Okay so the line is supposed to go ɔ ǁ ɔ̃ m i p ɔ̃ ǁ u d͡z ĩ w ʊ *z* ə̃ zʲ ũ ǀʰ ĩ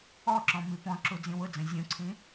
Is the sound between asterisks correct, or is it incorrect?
incorrect